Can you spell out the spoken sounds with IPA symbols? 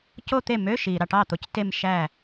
c o˥˧ t̪ e˥˩ m ø˧˥˧ ʃ i˨ ɾ ɑ˥˩ ʈ ɑ˥˩ t̪ o˨ c t e˥˧ m ʃ æ˥˩

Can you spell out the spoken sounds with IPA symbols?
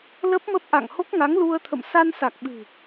l ə˦˥ p̚ m ə˦˥ p̚ ʔ a̰˧˨ ŋ h o˦˥ k̚ ŋ a˨˦ ŋ l u˧ ə̯ t̪ʰ ə̰˧˨ m s a˧ n s a˨˩ k̚ ɓ ɨ̤˨˩

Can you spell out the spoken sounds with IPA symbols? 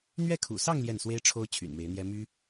n̪ ɥ ɛ˥˩ kʰ ṵ˨˩ s ɑ˥˧ ŋ l j ɛ˥˩ n s w e˥ ɪ̯ ʈ͡ʂʰ o˥ ʊ̯ t͡ɕʰ y̰˨˩ n m e˧˥ ɪ̯ n̪ j ɛ˥ m y˥

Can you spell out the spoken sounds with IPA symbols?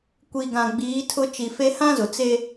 kʷ i˨ ɡ ã˨ ɡ͡b iː˨˦ tʰ ʊ˦ t͡ʃ i˨ f e˦ h ã˦ z ʊ˨ t͡s e˦

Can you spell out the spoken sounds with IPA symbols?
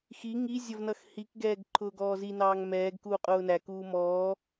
x i ŋ i zʲ ʌ v n ʌ x h i k ɡ ɛː ɡ ǃʰ ʊː ɡ ɔː z i n ɑː ŋ m ɛː ɡ k uː qʼ ʊː n æ k uː m ɔː

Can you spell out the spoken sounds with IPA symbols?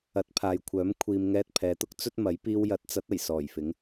ɐ˨˥ t̚ pʰ aː˨ j kʷʰ œː˨˥ m kʷʰ iː˨ m ŋ ɛː˧ t̚ pʰ ɛː˨˧ t̪ ʊ˥ k̚ t͡s ɵ˥ t̚ m ɐ˨˥ j p iː˧ w j ɐ˨˥ t̚ t͡s ɐ˨˥ t̚ ɐ˨˩ j s ɔː˨˩ j f ɪ˨˥ ŋ

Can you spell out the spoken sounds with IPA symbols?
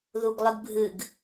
ð u ɡ lˠ ɨ ɡ bʱ ɨ ɡ

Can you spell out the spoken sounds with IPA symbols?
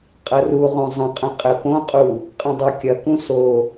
qʼ ɐ r u ʁ õ zˤ ə̃ qʼ ə̃ qʼ ɘ p õ qʼ u | qʼ ɐ̃ dˤ o kʲ ɐ k ũ s o

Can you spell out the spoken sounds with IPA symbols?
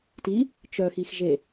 t i | t͡ʃ œ x i x ʒ e

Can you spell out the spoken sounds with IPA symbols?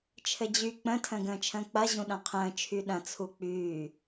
t͡ʃʰ ɘ d͡ʑ y k͡p ə̃ tʰ ə̃ː ɡ ə̃ː t͡ʃʰ ə̃ː k͡p ɐ ʑ ũ ɗ ɐ̃ qʰ ə̃ː t͡ʃʰ y ɗ ɐ̃ t͡sʰ u k͡p yː

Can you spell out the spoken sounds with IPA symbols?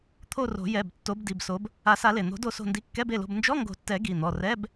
t̪ʰ o˦˨ r o̤˨˩˦ j ɛ˩˧˩ b tː o˨˦ b d i˩˧˩ b s o˨˦ b | a˨˩˦ s a˨˩˦ l e˩ n̪ o̤˨˩˦ d o˦˨ s o̤˦˨ n d i˧˥˧ kː ɛ˧˥˧ b e˩˧˩ l o̤˦˨ b n d͡ʒ ɔ˧˥˧ ŋ ɡ o̤˨˩˦ tː ɛ˨˩˦ ɡ i˩˧˩ n̪ ɔ˩˧˩ r ɛ˧˥˧ b

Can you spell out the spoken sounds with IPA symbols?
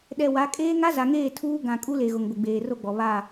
ɗ ɛ˨ w a˨˦ kʼ eː˦ ŋ a˦ z a˨ ŋ eː˦˨ tʰ uː˦ ɡ ã˨ kʼ u˦ l e˨ ɣ ʊ˨ ŋ ɡʷ ɪ˨ ɡ͡b eː˨ r o˦ ɡ͡b ɔ˨ β a˦˨

